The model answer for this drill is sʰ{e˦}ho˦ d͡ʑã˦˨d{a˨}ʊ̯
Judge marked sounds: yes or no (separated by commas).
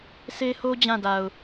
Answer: yes, yes